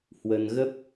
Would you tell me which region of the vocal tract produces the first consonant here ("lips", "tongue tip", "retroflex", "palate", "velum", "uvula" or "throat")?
throat